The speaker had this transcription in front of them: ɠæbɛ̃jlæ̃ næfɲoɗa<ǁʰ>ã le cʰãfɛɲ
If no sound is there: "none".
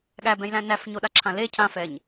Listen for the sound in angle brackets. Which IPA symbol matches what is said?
ǁʰ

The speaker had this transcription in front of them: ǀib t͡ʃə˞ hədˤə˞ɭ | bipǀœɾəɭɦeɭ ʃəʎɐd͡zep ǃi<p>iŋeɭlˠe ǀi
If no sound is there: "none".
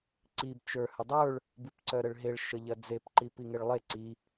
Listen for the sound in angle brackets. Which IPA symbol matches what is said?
p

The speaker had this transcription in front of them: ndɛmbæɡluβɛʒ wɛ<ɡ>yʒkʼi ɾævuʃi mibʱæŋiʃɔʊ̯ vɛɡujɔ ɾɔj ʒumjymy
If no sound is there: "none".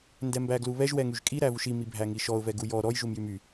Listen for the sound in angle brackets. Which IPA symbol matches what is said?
ŋ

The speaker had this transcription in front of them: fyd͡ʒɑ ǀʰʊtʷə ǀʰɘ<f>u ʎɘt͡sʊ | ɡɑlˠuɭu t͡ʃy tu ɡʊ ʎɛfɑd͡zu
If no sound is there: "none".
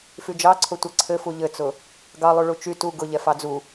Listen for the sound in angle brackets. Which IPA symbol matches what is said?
f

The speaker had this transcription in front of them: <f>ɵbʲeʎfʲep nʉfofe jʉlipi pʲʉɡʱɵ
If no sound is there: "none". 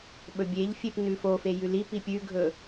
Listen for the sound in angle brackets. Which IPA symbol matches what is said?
ɓ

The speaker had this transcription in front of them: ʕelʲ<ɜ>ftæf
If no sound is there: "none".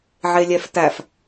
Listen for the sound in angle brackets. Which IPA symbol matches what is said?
ɛ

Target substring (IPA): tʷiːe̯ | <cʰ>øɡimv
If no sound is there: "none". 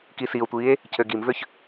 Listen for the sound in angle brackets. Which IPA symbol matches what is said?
cʰ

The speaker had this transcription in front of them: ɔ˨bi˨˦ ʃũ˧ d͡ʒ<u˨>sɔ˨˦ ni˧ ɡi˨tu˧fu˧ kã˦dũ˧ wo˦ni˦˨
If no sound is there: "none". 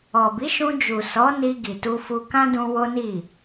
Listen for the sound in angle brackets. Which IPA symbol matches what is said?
u˨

